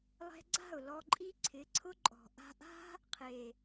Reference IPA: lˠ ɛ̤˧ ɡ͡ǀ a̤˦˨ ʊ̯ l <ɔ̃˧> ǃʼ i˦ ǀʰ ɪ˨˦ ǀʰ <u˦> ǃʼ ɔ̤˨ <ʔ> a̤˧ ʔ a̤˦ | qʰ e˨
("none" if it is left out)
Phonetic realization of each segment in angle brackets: ɔ˧, ʊ˦, ʔ

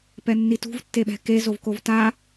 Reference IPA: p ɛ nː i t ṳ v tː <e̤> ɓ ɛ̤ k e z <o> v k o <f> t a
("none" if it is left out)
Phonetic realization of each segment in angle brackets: e, o, v

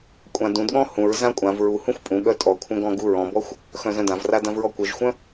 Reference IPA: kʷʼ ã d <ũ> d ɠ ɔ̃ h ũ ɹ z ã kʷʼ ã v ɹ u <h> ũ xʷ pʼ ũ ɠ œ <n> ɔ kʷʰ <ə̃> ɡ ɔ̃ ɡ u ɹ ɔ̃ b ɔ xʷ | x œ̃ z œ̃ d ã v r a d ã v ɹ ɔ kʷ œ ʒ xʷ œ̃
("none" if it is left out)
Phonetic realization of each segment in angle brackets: ũ, h, tʼ, œ̃

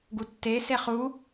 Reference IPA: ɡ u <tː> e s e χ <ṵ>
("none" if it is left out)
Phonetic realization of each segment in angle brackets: tː, u

